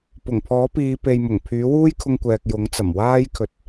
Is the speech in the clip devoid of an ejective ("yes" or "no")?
yes